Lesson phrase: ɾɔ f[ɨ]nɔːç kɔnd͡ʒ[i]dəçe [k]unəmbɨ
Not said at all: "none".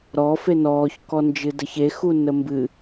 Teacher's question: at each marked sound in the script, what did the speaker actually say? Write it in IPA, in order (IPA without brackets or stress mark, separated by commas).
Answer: e, ɨ, x